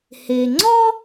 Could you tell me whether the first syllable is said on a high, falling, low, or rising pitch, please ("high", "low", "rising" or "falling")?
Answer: low